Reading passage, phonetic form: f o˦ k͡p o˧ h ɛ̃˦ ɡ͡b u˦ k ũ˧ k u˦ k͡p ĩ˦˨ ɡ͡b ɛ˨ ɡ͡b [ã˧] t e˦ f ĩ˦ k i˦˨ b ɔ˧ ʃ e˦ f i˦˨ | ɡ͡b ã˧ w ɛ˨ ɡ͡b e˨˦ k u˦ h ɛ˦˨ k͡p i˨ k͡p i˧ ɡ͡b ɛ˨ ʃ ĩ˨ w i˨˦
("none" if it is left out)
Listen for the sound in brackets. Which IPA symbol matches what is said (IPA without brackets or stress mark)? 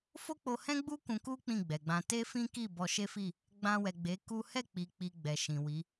ã˧